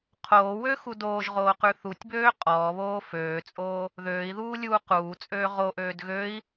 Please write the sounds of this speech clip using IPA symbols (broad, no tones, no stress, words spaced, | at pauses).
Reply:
qʰoːwøxu doːʒʁoːqʉ θutʲbøː qʼɔːβoː føːt͡sʼoː | ðøːi̯ðuːlʲuː quːt͡sʼøː ʁoʔøːd ɣøi̯